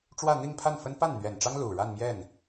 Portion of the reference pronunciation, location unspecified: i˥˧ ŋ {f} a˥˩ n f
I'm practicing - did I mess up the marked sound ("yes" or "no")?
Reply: yes